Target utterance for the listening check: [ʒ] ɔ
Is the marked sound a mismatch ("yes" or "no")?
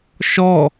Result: yes